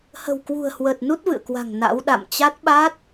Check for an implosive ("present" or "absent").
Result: present